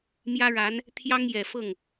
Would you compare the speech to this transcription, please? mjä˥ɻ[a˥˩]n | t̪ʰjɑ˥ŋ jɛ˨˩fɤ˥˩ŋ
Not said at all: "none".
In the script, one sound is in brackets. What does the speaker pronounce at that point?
a˧˥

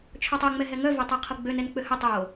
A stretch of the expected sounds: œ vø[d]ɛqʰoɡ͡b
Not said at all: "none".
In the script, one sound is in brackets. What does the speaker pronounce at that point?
tˤ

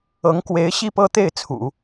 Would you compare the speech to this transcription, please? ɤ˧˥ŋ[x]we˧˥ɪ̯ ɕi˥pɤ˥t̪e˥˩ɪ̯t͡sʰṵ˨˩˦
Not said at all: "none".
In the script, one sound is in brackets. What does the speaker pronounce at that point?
k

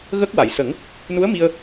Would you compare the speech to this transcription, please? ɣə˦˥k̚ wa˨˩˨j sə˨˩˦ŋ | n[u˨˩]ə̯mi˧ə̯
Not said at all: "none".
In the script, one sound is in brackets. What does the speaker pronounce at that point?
u˧˥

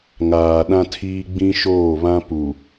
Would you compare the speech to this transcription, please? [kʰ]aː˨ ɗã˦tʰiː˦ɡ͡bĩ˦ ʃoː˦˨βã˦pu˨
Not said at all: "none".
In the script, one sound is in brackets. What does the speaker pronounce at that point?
ŋ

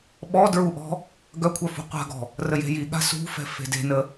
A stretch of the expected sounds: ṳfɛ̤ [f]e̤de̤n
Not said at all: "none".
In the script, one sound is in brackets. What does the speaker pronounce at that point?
f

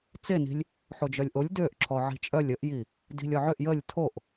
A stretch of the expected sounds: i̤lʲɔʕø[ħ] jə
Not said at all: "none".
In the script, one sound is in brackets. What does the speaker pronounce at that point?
ʔ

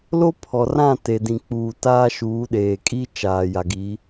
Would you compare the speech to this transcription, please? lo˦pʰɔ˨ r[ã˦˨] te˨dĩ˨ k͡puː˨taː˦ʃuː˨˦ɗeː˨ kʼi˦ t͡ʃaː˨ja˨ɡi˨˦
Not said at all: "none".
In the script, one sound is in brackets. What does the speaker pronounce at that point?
ã˦˨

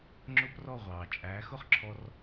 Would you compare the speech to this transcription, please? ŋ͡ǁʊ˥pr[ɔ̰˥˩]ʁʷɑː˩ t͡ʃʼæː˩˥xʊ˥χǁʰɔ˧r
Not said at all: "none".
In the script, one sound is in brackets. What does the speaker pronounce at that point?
ɔ˥˩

